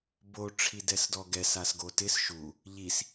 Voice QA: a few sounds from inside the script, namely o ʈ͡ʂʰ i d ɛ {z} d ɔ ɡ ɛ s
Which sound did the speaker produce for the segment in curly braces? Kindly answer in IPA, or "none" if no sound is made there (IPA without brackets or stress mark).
s